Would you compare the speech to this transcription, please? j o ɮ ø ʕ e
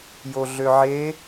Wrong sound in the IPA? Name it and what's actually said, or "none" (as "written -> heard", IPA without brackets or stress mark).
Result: none